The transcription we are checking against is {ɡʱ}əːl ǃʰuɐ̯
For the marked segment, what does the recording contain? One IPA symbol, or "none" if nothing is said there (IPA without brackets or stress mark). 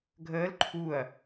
ɡʱ